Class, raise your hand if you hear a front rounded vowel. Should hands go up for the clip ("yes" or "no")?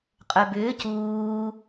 yes